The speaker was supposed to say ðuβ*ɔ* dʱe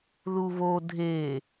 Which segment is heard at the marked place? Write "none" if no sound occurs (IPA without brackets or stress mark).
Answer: o